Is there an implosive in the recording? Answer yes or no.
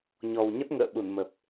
yes